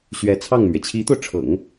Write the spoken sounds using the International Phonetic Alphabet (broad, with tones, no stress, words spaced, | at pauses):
ɕɥɛ˧˥ t͡sʰɑ˥˩ŋmɥɛ˩ t͡ɕʰi˧˥t̪o˧ʊ̯ʈ͡ʂʰɤ̰˨˩˦ŋ